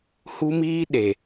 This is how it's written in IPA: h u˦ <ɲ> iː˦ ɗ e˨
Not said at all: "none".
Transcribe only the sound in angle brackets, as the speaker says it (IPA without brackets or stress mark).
m